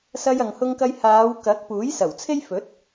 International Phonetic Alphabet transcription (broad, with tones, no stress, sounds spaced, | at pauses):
s ɐ˧ j ɐ˨ ŋ h ʊ˧ ŋ k ɐ˧ j h aː˨˧ w k ɐ˨˥ k̚ p uː˨˥ j s ɐ˨˩ w t͡sʰ e˥ j f ɵ˨˥ t̚